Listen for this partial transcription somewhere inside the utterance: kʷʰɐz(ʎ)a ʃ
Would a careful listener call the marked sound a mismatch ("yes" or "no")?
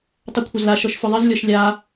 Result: yes